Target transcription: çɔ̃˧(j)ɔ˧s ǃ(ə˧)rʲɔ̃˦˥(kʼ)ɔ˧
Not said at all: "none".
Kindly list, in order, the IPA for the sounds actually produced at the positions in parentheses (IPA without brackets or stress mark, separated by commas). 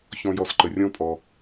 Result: j, ə˧, pʼ